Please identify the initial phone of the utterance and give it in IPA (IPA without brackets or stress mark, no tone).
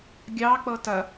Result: ɡʲ